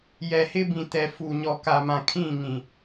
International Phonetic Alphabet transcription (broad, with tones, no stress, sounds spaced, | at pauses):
j ɛ˨ h ɪ˦ b ĩ˨ t ɛ˨ f u˨ ɲ ɔ˨ k a˨ m ã˨ kʰ ĩ˦˨ ŋ ĩ˨